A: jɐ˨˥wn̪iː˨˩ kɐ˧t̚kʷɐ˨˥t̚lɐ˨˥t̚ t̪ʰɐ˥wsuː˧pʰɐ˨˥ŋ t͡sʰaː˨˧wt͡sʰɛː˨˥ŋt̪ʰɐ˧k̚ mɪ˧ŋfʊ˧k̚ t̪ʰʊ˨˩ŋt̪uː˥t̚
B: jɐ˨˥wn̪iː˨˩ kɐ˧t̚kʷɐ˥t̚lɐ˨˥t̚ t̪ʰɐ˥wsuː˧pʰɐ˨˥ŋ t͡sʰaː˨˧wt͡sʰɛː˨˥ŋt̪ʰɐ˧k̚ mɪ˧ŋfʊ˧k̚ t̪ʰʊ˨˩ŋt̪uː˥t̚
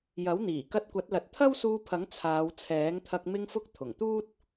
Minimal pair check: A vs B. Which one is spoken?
A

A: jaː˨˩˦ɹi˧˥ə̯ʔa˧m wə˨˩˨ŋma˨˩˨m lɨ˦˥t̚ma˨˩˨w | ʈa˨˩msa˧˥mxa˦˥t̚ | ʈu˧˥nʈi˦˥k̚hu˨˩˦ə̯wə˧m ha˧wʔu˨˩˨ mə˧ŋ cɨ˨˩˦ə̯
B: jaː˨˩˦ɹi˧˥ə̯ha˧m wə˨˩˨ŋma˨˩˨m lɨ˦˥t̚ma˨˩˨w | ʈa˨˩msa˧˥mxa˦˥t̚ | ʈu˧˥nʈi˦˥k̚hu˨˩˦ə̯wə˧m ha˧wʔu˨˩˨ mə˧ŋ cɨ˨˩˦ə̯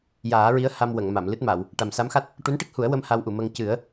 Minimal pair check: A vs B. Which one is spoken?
B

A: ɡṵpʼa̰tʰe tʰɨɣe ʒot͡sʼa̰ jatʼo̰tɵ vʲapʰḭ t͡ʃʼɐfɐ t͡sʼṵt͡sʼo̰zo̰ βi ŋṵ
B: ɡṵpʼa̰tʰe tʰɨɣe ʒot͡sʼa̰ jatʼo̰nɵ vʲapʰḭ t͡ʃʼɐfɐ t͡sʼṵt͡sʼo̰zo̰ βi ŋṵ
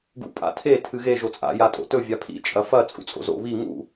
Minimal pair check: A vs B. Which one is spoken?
A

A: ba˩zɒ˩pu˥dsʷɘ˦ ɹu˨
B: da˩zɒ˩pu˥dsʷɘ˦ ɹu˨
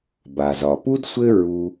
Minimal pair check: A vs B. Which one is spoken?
A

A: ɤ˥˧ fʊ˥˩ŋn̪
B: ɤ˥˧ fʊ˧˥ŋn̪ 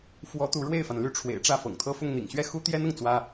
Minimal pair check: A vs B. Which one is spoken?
A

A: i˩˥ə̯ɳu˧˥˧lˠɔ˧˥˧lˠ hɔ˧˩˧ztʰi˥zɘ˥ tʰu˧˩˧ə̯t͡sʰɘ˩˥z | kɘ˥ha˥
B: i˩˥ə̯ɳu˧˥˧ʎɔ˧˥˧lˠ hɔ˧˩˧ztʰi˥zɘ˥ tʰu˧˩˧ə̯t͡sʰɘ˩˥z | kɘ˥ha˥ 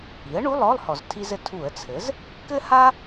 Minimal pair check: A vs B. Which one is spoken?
A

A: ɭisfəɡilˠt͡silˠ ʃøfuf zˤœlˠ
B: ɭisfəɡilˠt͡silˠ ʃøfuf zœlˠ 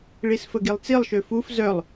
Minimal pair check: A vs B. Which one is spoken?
B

